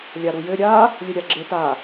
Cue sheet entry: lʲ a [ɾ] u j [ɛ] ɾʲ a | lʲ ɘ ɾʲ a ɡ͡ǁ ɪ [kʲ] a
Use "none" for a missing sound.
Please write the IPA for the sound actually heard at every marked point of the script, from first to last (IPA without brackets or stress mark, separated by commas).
ɾ, ɘ, t